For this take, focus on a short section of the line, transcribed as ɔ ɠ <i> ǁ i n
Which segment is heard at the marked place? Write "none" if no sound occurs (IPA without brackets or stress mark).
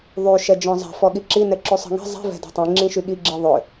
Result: i